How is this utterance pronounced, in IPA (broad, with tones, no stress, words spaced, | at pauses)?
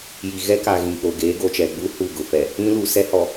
ji˨ɣɛ˦ka˨ ɣĩ˨ k͡po˨ɡeː˨˦ɡo˨t͡ʃɛ˨ ɡ͡bu˦ hu˦˨ɡʊ˨fɛ˨ | ĩ˦lu˨ sɛ˦ hɔ˨